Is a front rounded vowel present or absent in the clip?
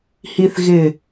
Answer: absent